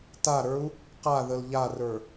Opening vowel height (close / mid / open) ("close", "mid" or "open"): open